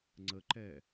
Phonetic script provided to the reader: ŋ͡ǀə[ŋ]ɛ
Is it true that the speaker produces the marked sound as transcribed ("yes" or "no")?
no